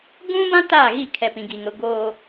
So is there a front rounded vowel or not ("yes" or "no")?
no